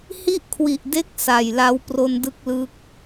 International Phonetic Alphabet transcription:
h i˥˩ ʔ kʰ w i˨˩ ʔ d e˦˥ k̚ s a˨˩ j l a˦˥ w p r o˧ n d ɯ˦˥ k̚ l ɯ˦˥ k̚

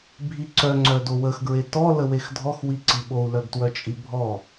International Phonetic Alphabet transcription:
bʱ i ǀ œ ŋ͡ǀ œ d o w ə x ɡ ɹ e t ɔ l ə w e x dʱ ɔ x w i ǀ i ɓ o u̯ l œ ɡ t w œ t͡ʃʼ i bʱ ɔ

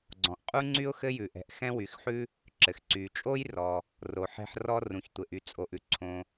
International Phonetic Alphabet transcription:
ɡ͡ǀ ɔ̃˩ ʔ qʼ u˥ ŋ͡ǀ y˥ ʊ̯ x ɘ˥ j ʉ˩ ʔ ɛ̤˩ ʔ x ɛ̃˥ w y˩ x ħ ʉ˥ | ǁ ɘ˩ x ǀ y˩ t͡ʃʼ o˥ j r ɔ˩ | r o˩ ħ ɛ̤˥ ħ r ɔ˥ r ũ˩ ç tʷ ɘ˩ ʔ y˩ t͡sʼ o˩ ʔ ʉ˩ ǀʰ õ˩

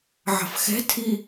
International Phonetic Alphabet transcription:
ʕ ɑ̤ f x ɛ̤ tʰ i

